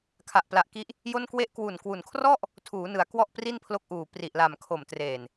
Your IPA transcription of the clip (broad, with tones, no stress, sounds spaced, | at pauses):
kʰ a˨˩ ʔ p l a˨˩ ʔ k i˦˥ ʔ | j o˥˩ n k w e˥˩ ʔ k w u˨˩ n k w u˨˩ n kʰ r ɔ˥˩ ʔ | tʰ uː˩˦ n ɯ˩˦ a̯ k w ɔ˥˩ ʔ p r i˥˩ n pʰ l o˦˥ k̚ ʔ uː˨˩ p r i˨˩ ʔ l a˨˩ m kʰ o˨˩ m t r eː˨˩ n